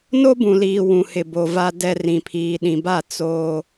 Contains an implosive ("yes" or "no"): yes